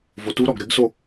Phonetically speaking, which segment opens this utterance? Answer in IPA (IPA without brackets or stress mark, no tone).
v